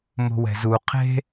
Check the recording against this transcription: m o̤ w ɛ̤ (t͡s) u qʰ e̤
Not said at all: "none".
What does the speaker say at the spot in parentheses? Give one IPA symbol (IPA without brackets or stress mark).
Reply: z